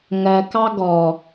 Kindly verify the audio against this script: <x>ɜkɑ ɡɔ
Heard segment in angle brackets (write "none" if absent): ŋ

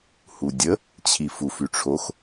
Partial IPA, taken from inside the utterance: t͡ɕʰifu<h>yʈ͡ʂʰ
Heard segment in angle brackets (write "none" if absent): f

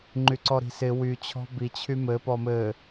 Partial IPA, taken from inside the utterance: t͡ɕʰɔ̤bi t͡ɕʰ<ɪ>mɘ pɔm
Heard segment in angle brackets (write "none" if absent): y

